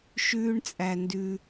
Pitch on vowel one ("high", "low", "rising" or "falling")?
high